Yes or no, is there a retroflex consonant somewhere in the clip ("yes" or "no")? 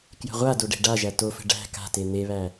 yes